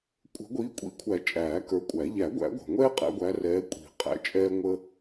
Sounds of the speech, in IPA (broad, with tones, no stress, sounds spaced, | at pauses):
kʷʼ ə̤˨˩˦ ɡʷ iː˨˦ kʷʼ ḭ˨˩˦ kʷʰ æ˨˩˦ t͡ʃʼ æː˨˩˦ k ə˞˨˦ kʷʼ æ˨˩˦ ʎ æ˨˩˦ ɡʷ æ̰˨˩˦ ɡʷ ɛ̤˩ ŋʷ ɛː˦ qʼ æ̰˨˦ ɡʷ æ˨˦ r ɛː˨˦ kʷʼ i̤˨˩˦ qʼ æ̰˨˦ t͡ʃʼ ɛː˦ ŋʷ əː˦